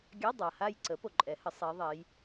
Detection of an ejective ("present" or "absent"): present